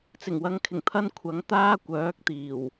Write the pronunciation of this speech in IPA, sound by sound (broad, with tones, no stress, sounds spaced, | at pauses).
t͡s ɪ˨˩ ŋ w ɐ˨ ŋ kʰ ɪ˨˩ ŋ t̪ʰ ɐ˧ n kʷʰ ɐ˨˥ ŋ t̪ aː˥ kʷ œː˨˥ k̚ t̪ iː˨˩ w